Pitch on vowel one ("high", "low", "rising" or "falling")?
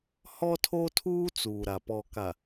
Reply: high